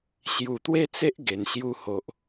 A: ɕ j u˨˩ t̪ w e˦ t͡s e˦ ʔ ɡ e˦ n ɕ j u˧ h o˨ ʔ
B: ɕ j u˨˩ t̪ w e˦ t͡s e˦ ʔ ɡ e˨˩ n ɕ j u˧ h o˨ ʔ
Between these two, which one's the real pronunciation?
B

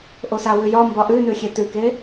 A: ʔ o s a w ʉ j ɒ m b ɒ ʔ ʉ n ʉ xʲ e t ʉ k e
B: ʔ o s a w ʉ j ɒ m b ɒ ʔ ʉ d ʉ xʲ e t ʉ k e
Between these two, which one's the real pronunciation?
A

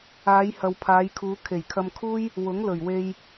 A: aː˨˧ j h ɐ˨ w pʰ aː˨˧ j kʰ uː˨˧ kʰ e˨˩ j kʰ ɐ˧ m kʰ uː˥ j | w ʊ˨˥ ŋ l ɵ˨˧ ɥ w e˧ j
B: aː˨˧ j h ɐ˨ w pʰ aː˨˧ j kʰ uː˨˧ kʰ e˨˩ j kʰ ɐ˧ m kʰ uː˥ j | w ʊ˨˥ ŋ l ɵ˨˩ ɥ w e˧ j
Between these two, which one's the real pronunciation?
B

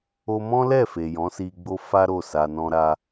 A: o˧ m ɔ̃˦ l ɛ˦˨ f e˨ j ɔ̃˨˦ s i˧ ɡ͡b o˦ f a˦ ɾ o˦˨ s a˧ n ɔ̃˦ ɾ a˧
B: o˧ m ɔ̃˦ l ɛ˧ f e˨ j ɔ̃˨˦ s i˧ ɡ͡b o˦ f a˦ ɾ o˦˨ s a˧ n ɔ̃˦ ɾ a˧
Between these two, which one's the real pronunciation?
A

